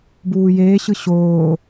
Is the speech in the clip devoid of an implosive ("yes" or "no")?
yes